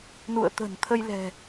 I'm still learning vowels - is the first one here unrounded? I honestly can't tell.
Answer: no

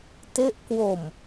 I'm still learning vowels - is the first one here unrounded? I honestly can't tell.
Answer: yes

